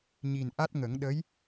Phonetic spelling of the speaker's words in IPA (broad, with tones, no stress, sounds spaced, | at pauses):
ɲ i˨˩ n ʔ a˦˥ t̚ ŋ ə˨˩˦ ŋ ɗ ə˧˥ j